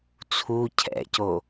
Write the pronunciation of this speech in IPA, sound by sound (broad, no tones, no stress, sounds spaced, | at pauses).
t͡sʰ u cʰ ɛ̰ c o